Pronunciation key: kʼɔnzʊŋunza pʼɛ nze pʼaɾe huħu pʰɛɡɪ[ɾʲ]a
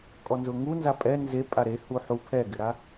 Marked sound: incorrect: ɾ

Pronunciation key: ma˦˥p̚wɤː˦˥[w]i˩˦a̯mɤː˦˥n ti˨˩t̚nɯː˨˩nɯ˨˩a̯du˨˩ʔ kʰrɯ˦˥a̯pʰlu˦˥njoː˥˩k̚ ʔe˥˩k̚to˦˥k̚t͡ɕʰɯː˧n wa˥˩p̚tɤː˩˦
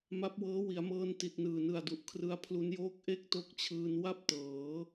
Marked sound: correct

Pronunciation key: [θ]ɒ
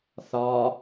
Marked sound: correct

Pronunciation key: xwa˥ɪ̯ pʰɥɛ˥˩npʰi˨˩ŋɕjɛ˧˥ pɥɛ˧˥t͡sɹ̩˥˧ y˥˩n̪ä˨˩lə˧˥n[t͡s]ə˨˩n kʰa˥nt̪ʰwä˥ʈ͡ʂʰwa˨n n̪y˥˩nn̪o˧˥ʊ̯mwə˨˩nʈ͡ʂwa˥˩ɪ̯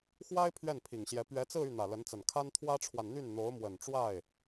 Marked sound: correct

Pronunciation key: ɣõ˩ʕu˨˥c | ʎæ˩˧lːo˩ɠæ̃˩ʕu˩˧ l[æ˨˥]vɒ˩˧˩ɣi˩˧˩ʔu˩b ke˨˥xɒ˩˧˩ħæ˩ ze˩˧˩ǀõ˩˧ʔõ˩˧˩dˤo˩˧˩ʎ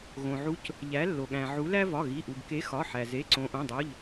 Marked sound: incorrect: æ˦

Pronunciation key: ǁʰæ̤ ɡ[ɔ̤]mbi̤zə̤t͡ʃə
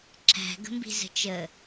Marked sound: incorrect: ə̤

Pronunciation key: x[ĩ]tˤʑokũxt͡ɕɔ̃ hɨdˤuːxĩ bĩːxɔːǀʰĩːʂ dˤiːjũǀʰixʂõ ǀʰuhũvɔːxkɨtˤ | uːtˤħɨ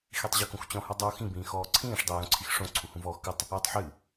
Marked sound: incorrect: i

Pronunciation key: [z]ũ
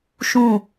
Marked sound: incorrect: ʃ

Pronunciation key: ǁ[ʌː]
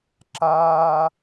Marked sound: incorrect: aː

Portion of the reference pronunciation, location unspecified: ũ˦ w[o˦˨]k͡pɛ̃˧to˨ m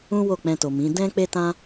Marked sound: correct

